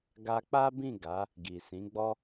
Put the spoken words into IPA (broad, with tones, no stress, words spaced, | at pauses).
ɡa˧k͡pa˦bĩ˦˨ɡa˨˦ | ɡi˨sĩ˨˦ɡ͡bɔ˦